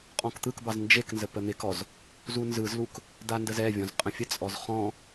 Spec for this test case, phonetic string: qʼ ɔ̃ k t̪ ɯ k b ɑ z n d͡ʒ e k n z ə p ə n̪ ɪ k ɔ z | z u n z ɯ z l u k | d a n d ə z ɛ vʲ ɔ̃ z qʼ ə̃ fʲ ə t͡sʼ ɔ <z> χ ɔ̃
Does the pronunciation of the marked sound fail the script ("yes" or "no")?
no